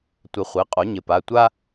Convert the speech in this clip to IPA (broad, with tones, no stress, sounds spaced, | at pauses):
tʷ ɪ˨˩˦ χʷ i˩˧˩ qʼ o˩˥ ɲ ɪ˩˥ p a˩˧˩ tʷ a˥